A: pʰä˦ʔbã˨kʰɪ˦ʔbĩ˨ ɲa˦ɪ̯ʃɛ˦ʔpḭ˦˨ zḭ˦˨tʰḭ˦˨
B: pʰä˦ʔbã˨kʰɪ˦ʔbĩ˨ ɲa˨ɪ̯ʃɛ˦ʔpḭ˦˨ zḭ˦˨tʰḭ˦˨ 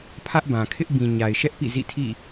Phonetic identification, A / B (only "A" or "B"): B